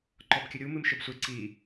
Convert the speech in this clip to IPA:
ǃ ɔ b kʲ ɘ ɾʲ u m ɨ m ʃ ɘ b sʷ e ǀ i

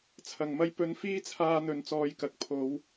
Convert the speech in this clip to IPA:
t͡sʰ ɐ˨ ŋ m ɐ˥ j p ɵ˧ n f iː˥ t͡sʰ aː˧ n̪ ɵ˨ n t͡s ɔː˧ j k ɐ˨ k̚ pʰ o˨˧ w

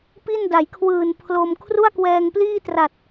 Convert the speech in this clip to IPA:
p i˥˩ n d a˩˦ j kʰ w ɯː˨˩ n pʰ l o˧ m kʰ r u˥˩ a̯ k w ɛː˧ ŋ p l iː˥˩ t r a˨˩ t̚

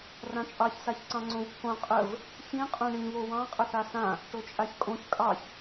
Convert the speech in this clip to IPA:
r ã t͡ʃʼ ɑ ç s a ç ǀ ɑ̃ ŋ͡ǀ õ v pʰ õ qʼ ə v | ç ĩ qʼ õ ɳ ĩ β o w ɑ̃ qʼ ə θ a s ã | ʈ o t͡ʃʼ a ç kʼ õ ç kʼ ɑ ç

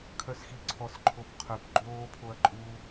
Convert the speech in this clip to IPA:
kʰ œ s x i ǀʰ ɔ s ǃʰ o p qʰ œ p ɡ͡ǃ oː pʰ o ɐ̯ ǃʼ uː

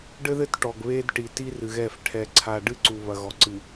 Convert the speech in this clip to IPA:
ɖ ɘ˦ ð ɘ˦ t ʈ ɔ˨ ɡ β e˦ d ʈ i˨ t i˦ r ɨ˨ ɣ ɛ˦˨ f ʈʰ ɛ˨ ǀʰ a˨ ɖ ɨ˦ ǀ u˨ β ɐ˨ ɣ ɔ˨ ǀ ɨ˨

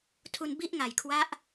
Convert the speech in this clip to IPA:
tʰ u˧ n b i˦˥ ʔ ŋ a˨˩ j kʰ w a˦˥ ʔ

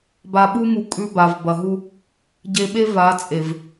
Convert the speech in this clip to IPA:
b a˨ ɓ u˦ m u˨ kʼ ʉ˦ b a˨ v b ɐ˨ ɦ u˦ | ɟ e˨ ɓ e˦ v a˨˦ t͡sʼ e˨ v

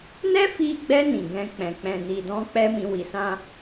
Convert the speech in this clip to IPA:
n ɛ˦ f i˧ ɡ͡b ɛ˧ n ĩ˨ ɡ ɛ̃˧ k͡p ɛ̃˨ k͡p ɛ̃˨ n i˨ d ɔ̃˧ k͡p ɛ˦ m ĩ˧ w i˧ s ã˦

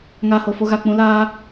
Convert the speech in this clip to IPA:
ŋ aː˧ h o˨ f o˧ ɣ a˨ k͡p ũ˧ l aː˦

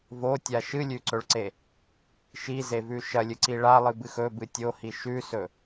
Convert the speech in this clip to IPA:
v o tʲ a ʃ ɨ lʲ ʉ ǀ ɵ ɭ ǀ e | ʃ i z e v ʉ ʃ ɐ lʲ ɨ ǀ i ɭ a lˠ ɨ b ɨ x ɵ b ɨ tʲ o h i ʃ ʉ s ɵ

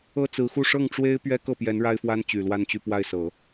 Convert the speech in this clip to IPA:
ɤ˥ t͡s ɹ̩˧˥ x u˥˧ ʂ ɤ˥˩ ŋ ʈ͡ʂ w e˥ ɪ̯ p ɥ ɛ˥ k ɤ˥˩ p j ɛ˧˥ n ɻ a˥ ɪ̯ f w a˥ n t͡ɕ y˨˩ l w a˥˧ n t͡ɕ y˥˧ p w a˥˩ ɪ̯ s ɤ˨˩˦

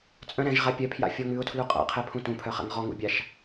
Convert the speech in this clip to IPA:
t͡sʼ œ̃ ɾ ɛ̃ ʒ ʁ a pʲ œ pʰ j a̰ fʲ ɔ ŋ ʉ ʊ̯ tʰ l u qʼ a̰ qʰ ɛ pʰ ũ t ũ pʰ œ χ a̰ ŋ ʁ ɔ ŋ ṵ bʲ a ʃ

